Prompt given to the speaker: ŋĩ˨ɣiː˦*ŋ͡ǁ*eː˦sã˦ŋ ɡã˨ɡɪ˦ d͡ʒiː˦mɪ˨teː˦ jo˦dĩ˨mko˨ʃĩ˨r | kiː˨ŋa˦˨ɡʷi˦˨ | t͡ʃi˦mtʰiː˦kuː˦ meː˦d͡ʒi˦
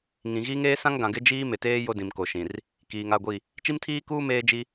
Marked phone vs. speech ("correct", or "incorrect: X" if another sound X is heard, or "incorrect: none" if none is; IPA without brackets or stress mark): incorrect: ŋ